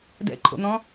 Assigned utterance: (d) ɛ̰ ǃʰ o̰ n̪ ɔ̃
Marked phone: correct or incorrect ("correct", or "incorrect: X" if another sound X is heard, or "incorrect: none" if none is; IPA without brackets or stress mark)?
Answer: correct